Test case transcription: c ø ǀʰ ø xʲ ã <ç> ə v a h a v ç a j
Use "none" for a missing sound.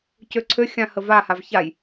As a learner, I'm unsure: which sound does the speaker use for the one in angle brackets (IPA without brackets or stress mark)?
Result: h